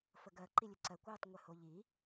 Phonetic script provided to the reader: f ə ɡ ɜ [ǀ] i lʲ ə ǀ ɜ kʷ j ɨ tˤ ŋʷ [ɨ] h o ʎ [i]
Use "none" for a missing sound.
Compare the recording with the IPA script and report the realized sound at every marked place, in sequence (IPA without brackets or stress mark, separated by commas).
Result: ǃ, ɨ, i